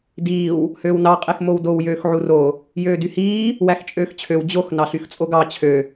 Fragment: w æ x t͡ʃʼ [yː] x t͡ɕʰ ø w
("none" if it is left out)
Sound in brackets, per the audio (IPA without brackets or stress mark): øː